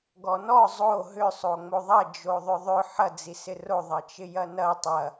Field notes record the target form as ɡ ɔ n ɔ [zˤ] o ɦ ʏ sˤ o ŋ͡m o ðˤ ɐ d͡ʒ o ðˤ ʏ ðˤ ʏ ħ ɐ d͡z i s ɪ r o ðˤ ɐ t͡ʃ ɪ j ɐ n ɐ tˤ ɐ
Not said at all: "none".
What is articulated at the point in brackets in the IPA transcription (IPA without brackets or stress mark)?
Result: zˤ